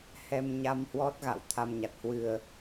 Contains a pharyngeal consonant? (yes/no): no